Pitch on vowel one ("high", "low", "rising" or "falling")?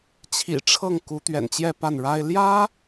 low